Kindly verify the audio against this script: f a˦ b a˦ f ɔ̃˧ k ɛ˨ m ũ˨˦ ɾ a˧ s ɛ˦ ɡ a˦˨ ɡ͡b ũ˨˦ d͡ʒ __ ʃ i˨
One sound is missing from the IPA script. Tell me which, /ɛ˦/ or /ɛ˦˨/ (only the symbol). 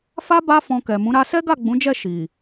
ɛ˦˨